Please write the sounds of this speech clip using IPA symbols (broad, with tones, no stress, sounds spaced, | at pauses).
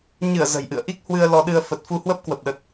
ɲ ɨ˧˩ ə̯ z ə̤˨˩ j ʔ ɨ̰˧˨ ə̯ ʔ i˦˥ k̚ h w ɨ˧ ə̯ l ɔ˧ ɗ ɨ˧ ə̯ f ə˨˩ t̚ f u˧ h w ə˦˥ p̚ k w ə˨˩ p̚ ɗ ə˨˩ t̚